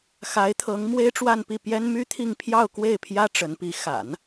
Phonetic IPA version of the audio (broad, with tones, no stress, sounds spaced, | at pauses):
x a˧˥ ɪ̯ t̪ʰ ɤ˧˥ ŋ m w e˥ ɪ̯ ʈ͡ʂ w a˥˧ n p i˥˩ p j ɛ˥ n m y˥ t̪ʰ i˥˧ ŋ pʰ j ɑ˥˧ ʊ̯ k w e˥˩ ɪ̯ pʰ j ä˥ ʈ͡ʂ ə˧˥ n p i˧˥ x a̰˨˩˦ n